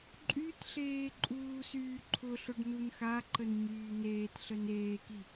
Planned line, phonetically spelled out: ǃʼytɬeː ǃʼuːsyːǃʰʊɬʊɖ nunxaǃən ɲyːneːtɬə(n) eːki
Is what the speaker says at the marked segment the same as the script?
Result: yes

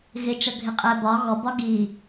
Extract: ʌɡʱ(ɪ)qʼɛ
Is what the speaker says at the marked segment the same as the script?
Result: yes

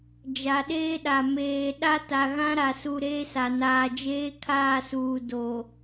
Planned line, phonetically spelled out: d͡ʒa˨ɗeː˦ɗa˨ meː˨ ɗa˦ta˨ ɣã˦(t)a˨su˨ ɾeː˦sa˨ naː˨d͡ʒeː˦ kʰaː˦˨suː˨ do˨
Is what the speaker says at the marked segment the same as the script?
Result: no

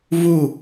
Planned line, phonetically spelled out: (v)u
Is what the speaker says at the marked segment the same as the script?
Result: yes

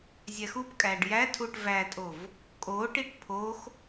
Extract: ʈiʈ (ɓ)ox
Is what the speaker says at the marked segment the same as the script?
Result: no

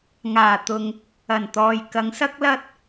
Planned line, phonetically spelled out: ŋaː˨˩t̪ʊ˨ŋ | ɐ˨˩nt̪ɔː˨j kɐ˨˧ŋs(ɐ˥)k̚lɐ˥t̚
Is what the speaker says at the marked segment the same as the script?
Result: yes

